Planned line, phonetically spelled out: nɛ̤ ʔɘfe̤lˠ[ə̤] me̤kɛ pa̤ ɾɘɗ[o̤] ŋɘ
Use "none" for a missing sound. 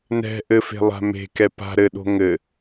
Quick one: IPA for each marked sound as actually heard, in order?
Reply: a̤, o̤

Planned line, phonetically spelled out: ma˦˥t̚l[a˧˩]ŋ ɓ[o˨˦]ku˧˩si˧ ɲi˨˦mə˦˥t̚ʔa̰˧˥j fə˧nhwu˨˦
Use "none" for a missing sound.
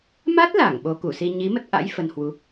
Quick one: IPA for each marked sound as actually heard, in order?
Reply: a˧˩, o˨˦

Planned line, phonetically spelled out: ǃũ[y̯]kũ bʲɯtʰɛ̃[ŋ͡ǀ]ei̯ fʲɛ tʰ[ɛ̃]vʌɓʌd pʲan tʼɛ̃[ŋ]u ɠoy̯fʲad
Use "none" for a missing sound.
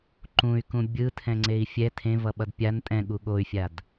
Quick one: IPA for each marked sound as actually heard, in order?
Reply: y̯, ŋ͡ǀ, ẽ, ɠ

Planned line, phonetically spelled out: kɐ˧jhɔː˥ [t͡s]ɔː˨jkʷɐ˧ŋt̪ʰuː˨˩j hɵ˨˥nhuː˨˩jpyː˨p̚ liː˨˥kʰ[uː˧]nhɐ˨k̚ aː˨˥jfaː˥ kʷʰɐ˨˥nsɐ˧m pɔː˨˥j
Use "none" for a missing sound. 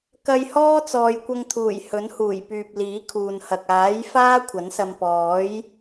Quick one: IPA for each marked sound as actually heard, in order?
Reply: t͡s, uː˨

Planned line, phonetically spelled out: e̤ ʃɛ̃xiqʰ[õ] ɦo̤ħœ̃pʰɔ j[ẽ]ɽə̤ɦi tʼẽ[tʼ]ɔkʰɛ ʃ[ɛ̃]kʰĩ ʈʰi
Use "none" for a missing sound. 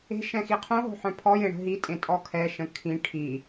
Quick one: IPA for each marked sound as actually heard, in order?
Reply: õ, ẽ, tʼ, ə̃

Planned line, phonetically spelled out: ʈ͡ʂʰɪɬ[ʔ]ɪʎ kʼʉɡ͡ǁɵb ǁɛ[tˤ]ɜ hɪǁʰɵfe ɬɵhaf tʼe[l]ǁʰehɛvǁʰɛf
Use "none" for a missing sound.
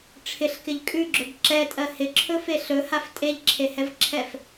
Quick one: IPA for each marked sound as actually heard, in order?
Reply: k, tʼ, ʎ

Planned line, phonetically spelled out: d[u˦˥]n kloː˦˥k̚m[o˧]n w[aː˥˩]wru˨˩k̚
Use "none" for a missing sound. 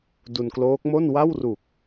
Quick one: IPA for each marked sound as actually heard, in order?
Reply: u˧, o˥˩, a˥˩

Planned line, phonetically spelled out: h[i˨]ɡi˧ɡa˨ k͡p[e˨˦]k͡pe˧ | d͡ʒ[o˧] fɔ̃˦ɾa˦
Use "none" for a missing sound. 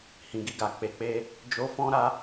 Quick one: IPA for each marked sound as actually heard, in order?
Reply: ĩ˨, e˨, o˧

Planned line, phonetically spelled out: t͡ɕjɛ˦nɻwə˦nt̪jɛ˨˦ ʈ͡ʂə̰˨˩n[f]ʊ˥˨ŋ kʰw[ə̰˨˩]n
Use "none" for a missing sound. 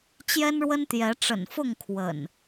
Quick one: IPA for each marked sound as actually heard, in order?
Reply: f, ə̰˨˩

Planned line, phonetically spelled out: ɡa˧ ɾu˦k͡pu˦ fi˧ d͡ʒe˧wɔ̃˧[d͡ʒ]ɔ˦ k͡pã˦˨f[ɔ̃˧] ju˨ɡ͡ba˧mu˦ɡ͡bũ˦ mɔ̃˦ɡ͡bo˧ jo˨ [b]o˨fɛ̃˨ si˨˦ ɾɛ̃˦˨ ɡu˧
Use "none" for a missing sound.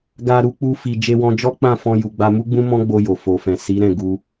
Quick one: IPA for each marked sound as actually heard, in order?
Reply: d͡ʒ, ɔ̃˧, f

